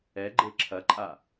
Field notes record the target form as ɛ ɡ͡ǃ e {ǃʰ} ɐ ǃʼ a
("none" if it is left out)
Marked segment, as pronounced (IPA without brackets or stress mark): ǁʰ